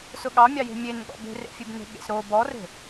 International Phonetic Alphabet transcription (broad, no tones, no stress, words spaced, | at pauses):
sʊɠɑmʲɑje̤ mʲenɠɔ̰ be̤rḛfʲebne̤ ɠḛsɾo bɔre̤